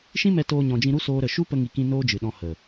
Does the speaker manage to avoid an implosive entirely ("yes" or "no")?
no